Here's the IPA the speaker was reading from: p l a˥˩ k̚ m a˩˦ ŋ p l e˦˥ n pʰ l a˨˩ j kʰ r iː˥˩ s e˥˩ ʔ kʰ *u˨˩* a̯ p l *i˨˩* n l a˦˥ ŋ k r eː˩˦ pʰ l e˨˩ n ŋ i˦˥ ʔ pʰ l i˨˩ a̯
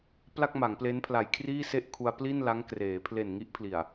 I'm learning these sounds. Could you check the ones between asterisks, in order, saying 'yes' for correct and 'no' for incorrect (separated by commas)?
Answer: no, no